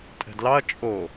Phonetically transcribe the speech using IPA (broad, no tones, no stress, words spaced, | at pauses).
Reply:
tʼɛ̤dlɑɐ̯ t͡ʃʼo